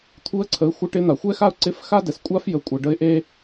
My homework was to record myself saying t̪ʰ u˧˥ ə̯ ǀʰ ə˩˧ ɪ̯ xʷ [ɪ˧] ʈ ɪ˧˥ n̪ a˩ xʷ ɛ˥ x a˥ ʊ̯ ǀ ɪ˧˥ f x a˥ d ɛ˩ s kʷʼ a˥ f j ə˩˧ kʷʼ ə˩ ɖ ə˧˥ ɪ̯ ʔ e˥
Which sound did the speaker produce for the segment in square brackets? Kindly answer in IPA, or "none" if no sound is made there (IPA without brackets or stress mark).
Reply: ɪ˧˥